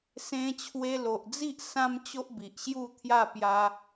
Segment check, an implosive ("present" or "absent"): absent